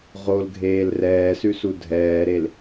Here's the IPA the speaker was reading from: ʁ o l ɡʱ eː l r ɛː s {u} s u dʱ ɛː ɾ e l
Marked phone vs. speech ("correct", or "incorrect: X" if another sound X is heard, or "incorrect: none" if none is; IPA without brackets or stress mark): incorrect: ʉ